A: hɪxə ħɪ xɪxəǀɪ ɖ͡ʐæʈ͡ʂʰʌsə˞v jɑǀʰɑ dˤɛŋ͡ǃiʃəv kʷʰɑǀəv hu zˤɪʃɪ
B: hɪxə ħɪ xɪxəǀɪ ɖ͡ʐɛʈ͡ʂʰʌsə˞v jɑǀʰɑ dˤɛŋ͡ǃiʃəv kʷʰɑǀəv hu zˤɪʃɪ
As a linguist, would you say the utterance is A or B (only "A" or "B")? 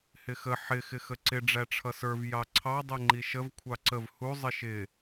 A